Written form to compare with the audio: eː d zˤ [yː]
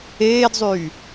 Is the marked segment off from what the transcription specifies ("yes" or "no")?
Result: no